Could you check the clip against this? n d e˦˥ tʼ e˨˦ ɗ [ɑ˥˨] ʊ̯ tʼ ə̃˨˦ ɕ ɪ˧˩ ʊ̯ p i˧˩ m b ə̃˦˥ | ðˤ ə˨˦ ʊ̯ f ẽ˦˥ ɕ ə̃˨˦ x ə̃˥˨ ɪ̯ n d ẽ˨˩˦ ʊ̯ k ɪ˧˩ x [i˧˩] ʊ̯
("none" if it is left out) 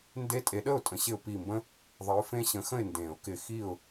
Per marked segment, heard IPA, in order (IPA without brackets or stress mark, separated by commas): ə˥˨, i˧˩